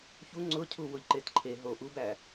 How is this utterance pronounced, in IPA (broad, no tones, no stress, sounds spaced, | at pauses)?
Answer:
ç u ŋ͡ǀ ʊ cʰ u w ʊ ʎ ǃ e t ǃʰ e ɦ o ʔ u b æ